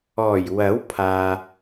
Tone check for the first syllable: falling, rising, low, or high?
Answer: low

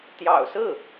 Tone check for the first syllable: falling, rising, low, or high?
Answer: low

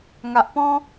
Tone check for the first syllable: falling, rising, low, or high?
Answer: low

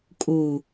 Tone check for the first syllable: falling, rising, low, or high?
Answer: low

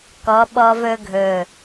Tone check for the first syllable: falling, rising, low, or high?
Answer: rising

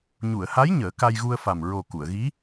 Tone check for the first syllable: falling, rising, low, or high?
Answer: low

